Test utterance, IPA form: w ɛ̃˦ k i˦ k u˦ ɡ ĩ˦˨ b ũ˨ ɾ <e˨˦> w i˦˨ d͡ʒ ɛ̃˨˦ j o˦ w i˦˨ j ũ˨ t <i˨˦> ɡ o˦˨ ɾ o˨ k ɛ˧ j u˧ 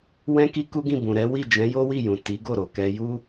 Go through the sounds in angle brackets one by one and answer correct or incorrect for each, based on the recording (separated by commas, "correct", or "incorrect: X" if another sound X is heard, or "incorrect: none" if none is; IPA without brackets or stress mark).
incorrect: ɛ˨˦, correct